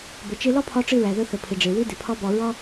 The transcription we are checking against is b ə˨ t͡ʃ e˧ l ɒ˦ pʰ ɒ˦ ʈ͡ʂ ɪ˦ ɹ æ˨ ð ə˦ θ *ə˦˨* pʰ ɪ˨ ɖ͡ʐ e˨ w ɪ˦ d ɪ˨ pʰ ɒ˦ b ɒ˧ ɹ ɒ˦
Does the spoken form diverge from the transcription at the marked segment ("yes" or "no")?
yes